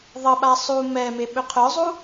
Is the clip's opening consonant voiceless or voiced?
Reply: voiced